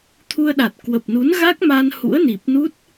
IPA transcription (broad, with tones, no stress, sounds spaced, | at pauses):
t̪ʰ u˧ ə̯ ɗ a˨˩ t̚ k w ə˨˩ p̚ n u˨˦ n ɣ a˦˥ k̚ m a˧ n h ṵ˧˥ ə̯ n i˨˩ p̚ n u˦˥ t̚